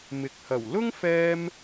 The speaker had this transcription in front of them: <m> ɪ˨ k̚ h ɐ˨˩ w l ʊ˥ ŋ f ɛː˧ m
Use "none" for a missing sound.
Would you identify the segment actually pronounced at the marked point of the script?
m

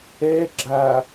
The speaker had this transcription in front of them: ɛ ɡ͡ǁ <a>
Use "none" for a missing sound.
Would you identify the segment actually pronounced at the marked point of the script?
a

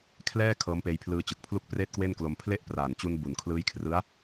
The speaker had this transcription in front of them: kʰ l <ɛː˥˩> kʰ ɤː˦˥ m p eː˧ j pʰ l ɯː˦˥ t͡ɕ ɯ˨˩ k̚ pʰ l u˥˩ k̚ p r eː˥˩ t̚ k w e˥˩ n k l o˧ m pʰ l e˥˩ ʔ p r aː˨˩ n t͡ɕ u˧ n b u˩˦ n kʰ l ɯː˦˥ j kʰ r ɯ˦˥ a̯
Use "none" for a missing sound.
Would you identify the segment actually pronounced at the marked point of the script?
ɛː˥˩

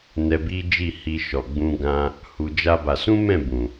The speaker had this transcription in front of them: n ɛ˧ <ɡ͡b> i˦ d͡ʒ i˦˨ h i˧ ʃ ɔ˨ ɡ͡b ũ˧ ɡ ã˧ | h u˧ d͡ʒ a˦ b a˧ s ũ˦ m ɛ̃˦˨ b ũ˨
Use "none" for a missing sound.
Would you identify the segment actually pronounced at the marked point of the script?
b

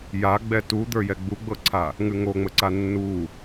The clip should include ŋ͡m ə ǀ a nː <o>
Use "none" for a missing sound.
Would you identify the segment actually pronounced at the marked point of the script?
u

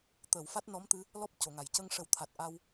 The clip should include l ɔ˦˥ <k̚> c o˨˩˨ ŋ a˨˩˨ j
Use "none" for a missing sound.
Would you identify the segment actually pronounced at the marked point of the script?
p̚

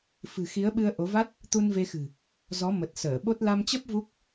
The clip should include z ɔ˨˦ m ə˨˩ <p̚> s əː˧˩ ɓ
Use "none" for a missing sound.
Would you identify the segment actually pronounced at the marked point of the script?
t̚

